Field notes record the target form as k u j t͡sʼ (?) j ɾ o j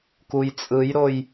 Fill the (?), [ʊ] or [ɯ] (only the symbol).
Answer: ɯ